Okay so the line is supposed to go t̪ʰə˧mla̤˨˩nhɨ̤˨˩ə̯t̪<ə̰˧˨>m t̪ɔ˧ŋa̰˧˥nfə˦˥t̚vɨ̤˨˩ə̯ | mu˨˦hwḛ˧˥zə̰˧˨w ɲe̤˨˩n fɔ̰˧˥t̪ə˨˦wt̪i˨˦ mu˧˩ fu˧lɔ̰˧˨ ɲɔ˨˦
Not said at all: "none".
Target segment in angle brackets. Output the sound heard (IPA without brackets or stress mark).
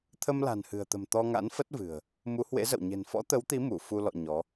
ə̤˨˩